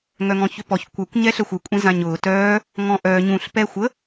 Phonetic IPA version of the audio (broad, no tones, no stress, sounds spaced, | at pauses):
ŋ œ ŋ ɔ̃ ç ʏ p ɔ ç kʷ œ kʷ ɲ ɛ ɬ ə xʷ ɯ kʷʼ ẽ z ã ɲ ʊː t œː | ŋ ɔ̃ ʔ œː ɲ ũ ɬ p ɛ xʷ ə